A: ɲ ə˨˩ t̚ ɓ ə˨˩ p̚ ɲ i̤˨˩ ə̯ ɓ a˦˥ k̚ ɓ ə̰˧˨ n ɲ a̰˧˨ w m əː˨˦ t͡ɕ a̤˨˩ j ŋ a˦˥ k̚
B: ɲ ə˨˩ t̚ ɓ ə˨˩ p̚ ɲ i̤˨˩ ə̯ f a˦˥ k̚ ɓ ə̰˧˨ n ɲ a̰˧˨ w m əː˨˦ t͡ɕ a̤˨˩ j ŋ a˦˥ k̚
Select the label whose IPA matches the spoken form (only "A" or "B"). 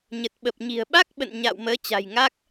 A